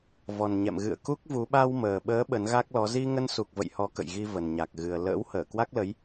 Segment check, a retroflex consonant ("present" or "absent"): absent